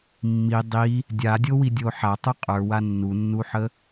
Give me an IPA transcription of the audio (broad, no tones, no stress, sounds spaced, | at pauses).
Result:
mː i dˤ i | dʲ a dʲ o w i dʲ o ħ a tˤ u qʼ ə˞ w a nː u nː u ħ ə